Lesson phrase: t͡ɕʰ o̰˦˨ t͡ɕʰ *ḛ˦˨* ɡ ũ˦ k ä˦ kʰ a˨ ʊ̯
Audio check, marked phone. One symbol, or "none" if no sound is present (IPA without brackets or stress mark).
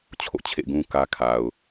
ḛ˦˨